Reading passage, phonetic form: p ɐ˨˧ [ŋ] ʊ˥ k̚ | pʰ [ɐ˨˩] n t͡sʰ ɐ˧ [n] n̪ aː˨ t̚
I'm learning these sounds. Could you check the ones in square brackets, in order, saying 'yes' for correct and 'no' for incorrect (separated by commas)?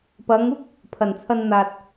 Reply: yes, yes, yes